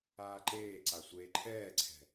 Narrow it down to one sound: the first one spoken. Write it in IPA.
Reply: aː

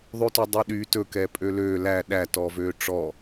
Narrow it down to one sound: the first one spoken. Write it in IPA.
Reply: ðˤ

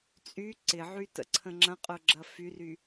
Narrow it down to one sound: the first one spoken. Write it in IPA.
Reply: t͡sʼ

